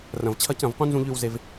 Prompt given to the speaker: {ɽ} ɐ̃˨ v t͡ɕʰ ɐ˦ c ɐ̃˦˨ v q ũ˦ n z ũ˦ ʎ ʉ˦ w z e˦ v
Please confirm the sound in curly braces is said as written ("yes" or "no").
no